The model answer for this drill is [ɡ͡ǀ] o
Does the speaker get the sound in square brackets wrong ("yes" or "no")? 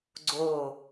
no